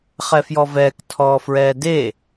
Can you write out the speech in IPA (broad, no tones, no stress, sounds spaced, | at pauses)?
χ ɛ f j ɔ v ɛː k tʰ ɔː f ɹ ɛː d e